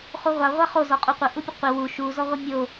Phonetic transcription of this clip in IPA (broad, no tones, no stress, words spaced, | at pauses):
χuʁʷa ʁʷaχo zɔqʼuqʷə ʔupʲəqʷɪ wu ʃu zɔʁʷɪmʲo